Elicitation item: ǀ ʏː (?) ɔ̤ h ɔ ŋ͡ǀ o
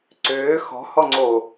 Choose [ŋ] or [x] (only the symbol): x